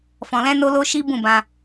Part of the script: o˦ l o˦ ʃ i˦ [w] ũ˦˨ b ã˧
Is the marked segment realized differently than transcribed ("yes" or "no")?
yes